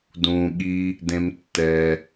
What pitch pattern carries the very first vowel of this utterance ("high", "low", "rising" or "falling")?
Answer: low